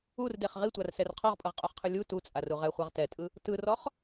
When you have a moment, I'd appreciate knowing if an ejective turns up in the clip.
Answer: yes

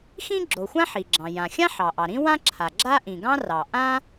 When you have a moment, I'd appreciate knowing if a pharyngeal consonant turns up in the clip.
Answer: yes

